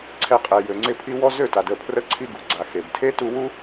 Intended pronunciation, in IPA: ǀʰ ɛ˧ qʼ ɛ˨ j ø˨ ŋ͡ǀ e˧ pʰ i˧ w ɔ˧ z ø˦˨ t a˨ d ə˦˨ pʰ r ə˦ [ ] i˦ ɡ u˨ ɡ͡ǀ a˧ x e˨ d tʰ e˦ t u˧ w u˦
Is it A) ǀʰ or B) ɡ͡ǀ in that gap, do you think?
A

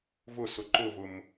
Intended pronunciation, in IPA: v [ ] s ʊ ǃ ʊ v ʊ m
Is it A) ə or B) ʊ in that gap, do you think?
B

